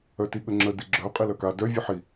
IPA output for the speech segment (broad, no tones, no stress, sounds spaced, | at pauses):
œ t i ɠ ə ŋ͡ǁ ə d i ɡ͡ǁ œ qʼ i l œ k a d œ vʲ ɨ ħ i